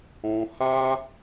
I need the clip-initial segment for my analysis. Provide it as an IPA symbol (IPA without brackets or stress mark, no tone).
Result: ɔ̃